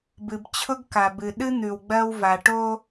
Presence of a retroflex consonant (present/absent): present